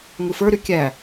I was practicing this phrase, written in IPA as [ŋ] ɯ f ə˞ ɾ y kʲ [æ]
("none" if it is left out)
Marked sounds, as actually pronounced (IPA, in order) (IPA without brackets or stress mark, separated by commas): ŋ, æ